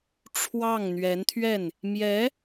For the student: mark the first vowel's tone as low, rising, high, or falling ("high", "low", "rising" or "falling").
falling